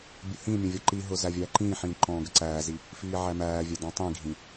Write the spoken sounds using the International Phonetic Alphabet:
bʲ ʊ h ĩ mʲ ə̃ vʲ ɒ ǃ i ɦ ʊ z æ vʲ æː ǃ ĩː ħ ĩː ǃ ɔ̃ː ɡ ə ǀ æː z i | f iː ʕ æ m æː vʲ ɛ d ɔ̃ tˤ ĩ ɡʱ ĩ

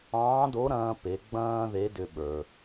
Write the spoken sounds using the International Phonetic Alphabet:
ɑ̃ː˧˥ d o˧˥ ɾ ɐ̃ː˧ p e˩˧ ɡ͡b ɐ̃ː˥ ð e˧˥ d ʏ˧ ɓ ə˞˩

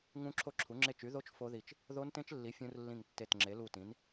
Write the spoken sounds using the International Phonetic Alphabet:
ŋ ũ˦˥ ǁʰ o˦˥ ǁʰ u˨˥ ŋ͡ǁ e˦˨ t͡ʃ y˨˥ ð o˦˥ t͡ʃ f o˦˥ ð i˦˨ t͡ʃ | ð o˦˥ n t ẽ˦˥ t͡ʃ lː i˨˥ fʲ ũ˦˥ r lː ĩ˦˨ ŋ tː e˦˨ t ŋ͡ǁ e˨˥ l u˦˨ t ĩ˨˥ n

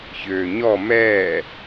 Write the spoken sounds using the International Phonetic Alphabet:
ç øː ɲ ɔ m ɛː

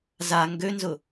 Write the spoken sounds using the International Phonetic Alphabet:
z a ŋ ɡ ø n z ʊ

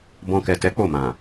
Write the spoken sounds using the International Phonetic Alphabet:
b ɔ̃˧ k ɛ˨ t ɛ˨˦ k͡p o˦˨ m ã˨

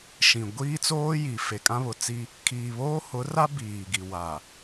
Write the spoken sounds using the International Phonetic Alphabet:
ʃ ĩ˨ ɡʷ iː˦ t͡s oː˦ j i˨ f e˨ kʼ ã˦ β ʊ˨ t͡s i˦ | kʰ iː˨ β oː˦ h ʊ˨˦ r a˦ b iː˨ ɡ i˨ w a˨

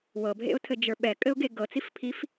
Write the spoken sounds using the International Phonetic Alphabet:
w ɤ bʱ ḛ ʊ̯ tʰ ɘ d͡ʒ ə˞ ɓ ɛ kʼ ɘ ʊ̯ ɡ e ɡ ɤ t͡s i f pʰ i f

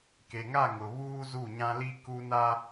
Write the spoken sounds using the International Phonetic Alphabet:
k e˨ ŋ a˦˨ ŋ ʊ˨ β uː˦ z u˦˨ ɲ ã˦ l i˦ k u˦ n a˦

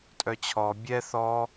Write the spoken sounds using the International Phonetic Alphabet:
tʼ œ t͡ɕʰ ɔ bʲ ɛ θ ɔ

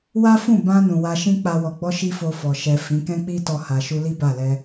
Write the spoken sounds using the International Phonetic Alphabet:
w a˦ f ũ˦˨ b ã˧ n ũ˨ w a˧ ʃ ĩ˦ k͡p a˧ w ɔ˨ ɡ͡b ɔ˧ ʃ i˧ f o˧ f ɔ˨ ʃ ɛ˨ f ĩ˨˦ k ɛ̃˦ k͡p i˦ t ɔ˧ h a˨ ʃ u˧ l i˦ b a˦˨ l ɛ˧

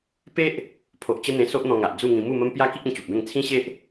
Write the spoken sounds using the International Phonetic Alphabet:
p e˦ ʔ | pʰ o˨ ʔ t͡ɕ ə˦ n̪ ẽ˧ s o˦ ʔ n̪ ɔ̃˧ ŋ a˨ ʔ d͡z u˥˧ ŋ ĩ˧ m u˥˧ m ə˦ m p j a˦ k i˦ k̚ ẽ˧ t͡ɕ u˨ p̚ b ẽ˥˧ ŋ t͡sʰ ĩ˦ ɕ e˦ ʔ

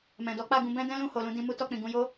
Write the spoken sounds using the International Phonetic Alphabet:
m ɛ̃˨ d ɔ˨˦ k͡p a˦˨ ɡ ũ˧ b ɛ̃˦ d ɛ̃˦ l ũ˦˨ h o˨ l ũ˧ d ĩ˧ m u˦ t ɔ˧ k͡p ĩ˨ ɡ ũ˧ j o˦

